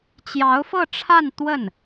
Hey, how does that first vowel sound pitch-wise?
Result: rising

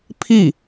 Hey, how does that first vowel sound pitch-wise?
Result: falling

